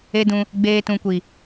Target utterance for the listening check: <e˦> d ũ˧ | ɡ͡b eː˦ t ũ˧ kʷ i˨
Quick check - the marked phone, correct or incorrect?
correct